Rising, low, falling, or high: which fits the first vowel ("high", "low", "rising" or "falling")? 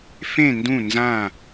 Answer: falling